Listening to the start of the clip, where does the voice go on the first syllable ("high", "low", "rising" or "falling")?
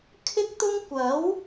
high